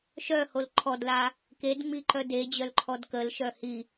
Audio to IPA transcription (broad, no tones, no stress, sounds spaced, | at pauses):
ʃ œ h o l ǃʰ ɔ d l a | k e d ŋ͡m i ǃ œ d e d͡ʑ œ l ǃʰ ɔ d k ə l ʃ œ h i